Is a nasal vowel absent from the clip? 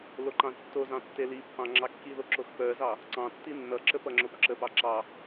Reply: no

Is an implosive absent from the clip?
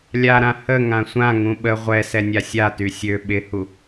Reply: no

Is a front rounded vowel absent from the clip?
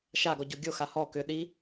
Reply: no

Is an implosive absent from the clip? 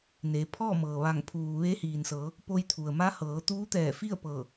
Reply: yes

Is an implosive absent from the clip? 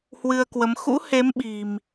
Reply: no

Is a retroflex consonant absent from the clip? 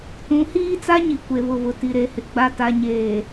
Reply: yes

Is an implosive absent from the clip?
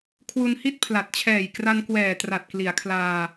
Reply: yes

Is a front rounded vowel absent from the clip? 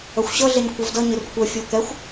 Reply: no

